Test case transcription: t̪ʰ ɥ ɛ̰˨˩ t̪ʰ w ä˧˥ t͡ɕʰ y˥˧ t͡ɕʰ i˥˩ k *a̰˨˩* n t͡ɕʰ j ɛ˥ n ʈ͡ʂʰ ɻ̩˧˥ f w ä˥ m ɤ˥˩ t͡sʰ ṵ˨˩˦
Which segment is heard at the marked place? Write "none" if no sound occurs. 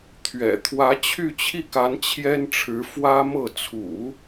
a˧˥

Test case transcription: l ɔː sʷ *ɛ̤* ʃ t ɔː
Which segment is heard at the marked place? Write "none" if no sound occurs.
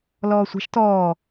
ɛ̤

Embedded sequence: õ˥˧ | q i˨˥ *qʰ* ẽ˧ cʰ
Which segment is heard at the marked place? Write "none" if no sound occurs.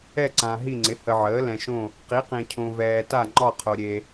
q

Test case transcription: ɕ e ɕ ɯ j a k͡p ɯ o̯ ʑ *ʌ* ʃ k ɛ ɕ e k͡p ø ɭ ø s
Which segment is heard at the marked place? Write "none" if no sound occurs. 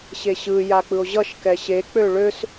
ʌ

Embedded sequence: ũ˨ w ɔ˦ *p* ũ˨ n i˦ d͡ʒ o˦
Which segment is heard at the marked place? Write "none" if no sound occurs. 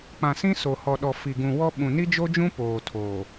ɓ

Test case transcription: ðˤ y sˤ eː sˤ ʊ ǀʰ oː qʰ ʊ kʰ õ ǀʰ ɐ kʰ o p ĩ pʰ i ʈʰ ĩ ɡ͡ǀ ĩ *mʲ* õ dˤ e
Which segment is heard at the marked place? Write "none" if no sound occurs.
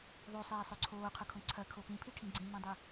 m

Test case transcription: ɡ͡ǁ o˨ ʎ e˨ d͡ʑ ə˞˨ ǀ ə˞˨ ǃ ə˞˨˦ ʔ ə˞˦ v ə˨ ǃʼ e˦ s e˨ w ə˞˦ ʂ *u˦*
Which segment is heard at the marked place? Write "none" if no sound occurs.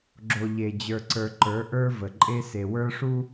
u˦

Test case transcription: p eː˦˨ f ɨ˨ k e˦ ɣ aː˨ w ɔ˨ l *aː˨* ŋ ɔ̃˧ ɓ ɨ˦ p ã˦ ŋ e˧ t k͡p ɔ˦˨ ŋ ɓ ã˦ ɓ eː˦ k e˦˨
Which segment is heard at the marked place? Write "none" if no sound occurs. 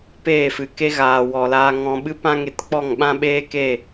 aː˧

